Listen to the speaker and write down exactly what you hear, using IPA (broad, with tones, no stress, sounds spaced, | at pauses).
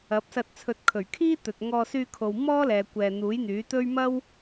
ɐ˨˥ p̚ s ɐ˧ t̚ t͡sʰ ɵ˨˥ t̚ kʰ ɵ˨˩ ɥ kʰ iː˥ t̪ ɵ˨ t̚ ŋ ɔː˧ s yː˧ kʰ o˨ w m ɔː˥ l ɛː˨ kʷ ɛː˨ n̪ uː˨˥ j n̪ yː˨˥ t̪ ɵ˥ ɥ m ɐ˥ w